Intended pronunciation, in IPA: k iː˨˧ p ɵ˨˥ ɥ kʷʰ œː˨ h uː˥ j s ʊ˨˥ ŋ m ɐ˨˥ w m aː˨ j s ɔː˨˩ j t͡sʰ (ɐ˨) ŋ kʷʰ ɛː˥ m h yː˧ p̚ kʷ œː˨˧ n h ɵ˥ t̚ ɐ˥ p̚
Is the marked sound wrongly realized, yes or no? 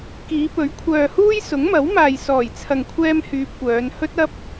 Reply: no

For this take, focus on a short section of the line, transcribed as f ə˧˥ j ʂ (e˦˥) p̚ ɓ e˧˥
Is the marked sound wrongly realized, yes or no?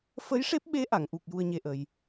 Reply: no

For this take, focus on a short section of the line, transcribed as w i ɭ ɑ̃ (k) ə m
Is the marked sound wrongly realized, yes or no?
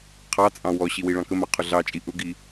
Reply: no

